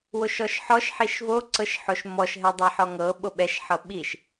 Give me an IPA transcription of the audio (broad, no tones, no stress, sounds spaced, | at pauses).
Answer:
w o ʃ ɔ ʃ ħ ɔ ʃ ħ i ʃ v o ǀ ɤ ʃ ħ o ʃ m ɔ ʃ ɦ ɛ dˤ ɛ ħ ɔ ŋ ɤ ɓ o ɓ ɛ ʃ ħ ɤ ɓ i ʃ